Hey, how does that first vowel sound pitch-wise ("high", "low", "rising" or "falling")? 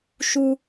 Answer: high